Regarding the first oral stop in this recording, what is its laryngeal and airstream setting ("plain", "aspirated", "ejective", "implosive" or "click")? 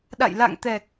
implosive